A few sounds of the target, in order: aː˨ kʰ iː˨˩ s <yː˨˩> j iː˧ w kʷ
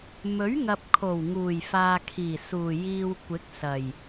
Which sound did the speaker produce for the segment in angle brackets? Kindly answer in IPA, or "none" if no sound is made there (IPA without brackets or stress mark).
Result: uː˨˩